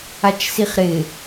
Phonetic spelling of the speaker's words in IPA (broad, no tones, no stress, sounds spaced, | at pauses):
a t͡ʃ s i χ ɾ ɪ